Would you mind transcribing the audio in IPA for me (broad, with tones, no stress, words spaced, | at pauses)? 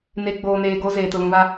ne˨ɡ͡boː˨neː˨ ɡoː˦zeː˨ tʊ˨lũ˨βa˦